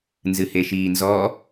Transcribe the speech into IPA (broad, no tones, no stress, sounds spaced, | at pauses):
n z ɨ h e ʃ iː n z ɔ